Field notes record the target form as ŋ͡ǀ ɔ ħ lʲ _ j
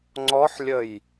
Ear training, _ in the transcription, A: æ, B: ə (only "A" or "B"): B